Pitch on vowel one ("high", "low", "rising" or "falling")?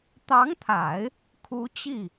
rising